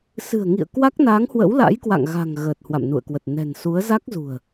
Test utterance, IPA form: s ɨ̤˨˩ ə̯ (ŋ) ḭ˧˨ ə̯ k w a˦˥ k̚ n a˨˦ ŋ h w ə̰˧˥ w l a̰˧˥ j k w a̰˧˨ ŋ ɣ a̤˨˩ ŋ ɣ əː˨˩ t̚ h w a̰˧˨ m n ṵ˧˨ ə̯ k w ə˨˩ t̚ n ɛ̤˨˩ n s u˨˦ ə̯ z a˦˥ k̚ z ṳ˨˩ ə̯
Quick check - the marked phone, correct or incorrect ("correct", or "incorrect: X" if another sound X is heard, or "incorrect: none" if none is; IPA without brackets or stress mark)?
correct